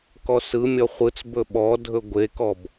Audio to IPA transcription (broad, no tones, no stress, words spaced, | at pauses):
kɔsɯmʲɔ χʷɯt͡sbɵ ɓɔdʱɵ ɡʷekɔb